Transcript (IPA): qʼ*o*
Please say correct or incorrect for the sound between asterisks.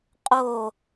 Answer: correct